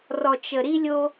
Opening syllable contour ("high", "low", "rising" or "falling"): low